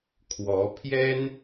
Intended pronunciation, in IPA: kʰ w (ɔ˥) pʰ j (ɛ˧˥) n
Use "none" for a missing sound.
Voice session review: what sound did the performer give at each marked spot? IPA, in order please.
ɔ˧˥, ɛ˥

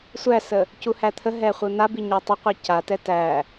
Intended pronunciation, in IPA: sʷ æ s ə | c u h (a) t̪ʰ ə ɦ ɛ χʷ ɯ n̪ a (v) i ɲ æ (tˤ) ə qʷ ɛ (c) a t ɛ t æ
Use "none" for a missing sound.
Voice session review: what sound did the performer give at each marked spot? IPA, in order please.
æ, b, tˤ, c

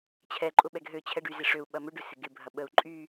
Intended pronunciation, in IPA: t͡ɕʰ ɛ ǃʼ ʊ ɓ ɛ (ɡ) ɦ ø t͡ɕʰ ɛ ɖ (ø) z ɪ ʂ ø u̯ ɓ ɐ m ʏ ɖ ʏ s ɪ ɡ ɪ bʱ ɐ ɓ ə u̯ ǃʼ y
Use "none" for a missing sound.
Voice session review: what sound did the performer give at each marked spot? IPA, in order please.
ɡ, y

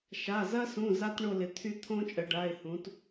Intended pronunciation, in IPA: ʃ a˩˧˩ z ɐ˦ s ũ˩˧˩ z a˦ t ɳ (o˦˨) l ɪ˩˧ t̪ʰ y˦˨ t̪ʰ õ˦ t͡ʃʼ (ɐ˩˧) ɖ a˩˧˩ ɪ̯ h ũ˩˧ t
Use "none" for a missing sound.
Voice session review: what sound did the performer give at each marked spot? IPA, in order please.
o˦˨, ə˩˧

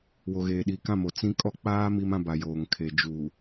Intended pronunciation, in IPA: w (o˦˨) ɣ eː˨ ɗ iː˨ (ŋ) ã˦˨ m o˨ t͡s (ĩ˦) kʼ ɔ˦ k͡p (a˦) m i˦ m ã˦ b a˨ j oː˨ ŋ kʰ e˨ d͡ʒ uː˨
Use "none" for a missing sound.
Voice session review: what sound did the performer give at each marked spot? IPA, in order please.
o˨, k, ĩ˦, aː˦

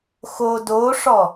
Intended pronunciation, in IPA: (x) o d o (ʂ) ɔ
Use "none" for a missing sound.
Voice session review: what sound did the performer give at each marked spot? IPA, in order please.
x, ʂ

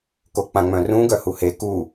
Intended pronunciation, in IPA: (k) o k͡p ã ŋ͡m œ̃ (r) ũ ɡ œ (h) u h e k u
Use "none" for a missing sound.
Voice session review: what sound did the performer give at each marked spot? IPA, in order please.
k, r, h

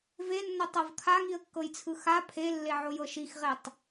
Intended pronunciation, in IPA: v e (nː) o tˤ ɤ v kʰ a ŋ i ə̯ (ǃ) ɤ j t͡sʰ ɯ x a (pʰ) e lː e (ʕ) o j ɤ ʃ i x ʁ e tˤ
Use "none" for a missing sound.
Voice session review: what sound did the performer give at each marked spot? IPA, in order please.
nː, kː, pʰ, ʕ

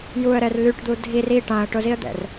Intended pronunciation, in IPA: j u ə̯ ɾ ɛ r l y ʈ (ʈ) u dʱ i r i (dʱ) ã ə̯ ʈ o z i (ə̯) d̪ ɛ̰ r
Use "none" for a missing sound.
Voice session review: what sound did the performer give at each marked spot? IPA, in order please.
d̪, ʈ, ə̯

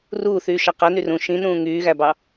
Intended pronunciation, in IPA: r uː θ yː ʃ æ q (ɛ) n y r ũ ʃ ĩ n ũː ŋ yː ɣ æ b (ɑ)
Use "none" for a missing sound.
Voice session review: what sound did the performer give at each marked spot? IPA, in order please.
æ, ɑ

